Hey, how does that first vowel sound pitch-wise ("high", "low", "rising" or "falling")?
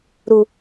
low